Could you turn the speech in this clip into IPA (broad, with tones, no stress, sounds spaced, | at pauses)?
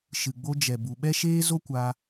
ʃ ɨ˨ ɡ͡b o˧ d͡ʒ ɛ˨ b u˨ ɓ ɛ˦ ʃ eː˦ z o˦ kʷ a˧